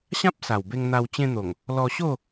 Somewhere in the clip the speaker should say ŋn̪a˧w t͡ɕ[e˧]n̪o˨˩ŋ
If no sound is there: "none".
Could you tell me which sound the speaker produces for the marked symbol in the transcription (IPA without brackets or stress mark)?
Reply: ẽ˧